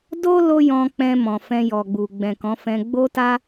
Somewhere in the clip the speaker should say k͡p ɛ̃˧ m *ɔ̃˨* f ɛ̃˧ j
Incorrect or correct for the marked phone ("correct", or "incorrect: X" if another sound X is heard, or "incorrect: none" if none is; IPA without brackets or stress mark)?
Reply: correct